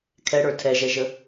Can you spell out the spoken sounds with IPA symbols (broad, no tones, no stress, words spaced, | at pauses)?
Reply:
kʰɛɽə˞ tʰɛʒɛʒə